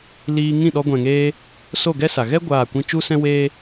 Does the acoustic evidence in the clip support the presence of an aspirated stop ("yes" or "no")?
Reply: no